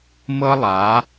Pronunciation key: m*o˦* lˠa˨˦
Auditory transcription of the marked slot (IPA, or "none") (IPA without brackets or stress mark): ɤ˦